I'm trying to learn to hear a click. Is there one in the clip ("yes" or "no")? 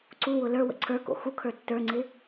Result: yes